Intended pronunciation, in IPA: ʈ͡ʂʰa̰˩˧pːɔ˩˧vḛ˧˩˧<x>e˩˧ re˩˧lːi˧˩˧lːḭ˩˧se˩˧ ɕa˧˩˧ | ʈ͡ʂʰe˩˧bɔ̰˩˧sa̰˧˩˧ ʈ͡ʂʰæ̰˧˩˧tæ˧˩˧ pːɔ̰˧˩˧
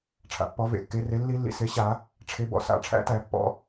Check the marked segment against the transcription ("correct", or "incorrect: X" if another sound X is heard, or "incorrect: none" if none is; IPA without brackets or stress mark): incorrect: kː